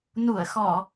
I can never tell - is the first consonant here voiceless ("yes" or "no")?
no